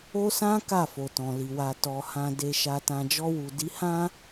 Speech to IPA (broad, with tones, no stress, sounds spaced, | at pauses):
o˦ s ã˦ k a˦˨ f o˨ t ɔ̃˨ l i˨ w a˨ t ɔ˨ h ã˨ d e˨ ʃ a˨ t ã˨ d͡ʒ ɔ˧ w u˨ d i˨˦ h ã˦